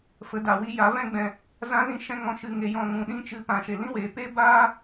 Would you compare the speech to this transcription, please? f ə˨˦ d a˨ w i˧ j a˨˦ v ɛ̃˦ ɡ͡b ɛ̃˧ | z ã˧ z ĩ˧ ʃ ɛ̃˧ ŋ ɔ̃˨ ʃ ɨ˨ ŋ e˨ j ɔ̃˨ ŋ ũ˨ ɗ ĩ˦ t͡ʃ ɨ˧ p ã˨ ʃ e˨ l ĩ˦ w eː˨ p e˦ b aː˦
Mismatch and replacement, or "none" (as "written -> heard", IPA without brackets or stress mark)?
none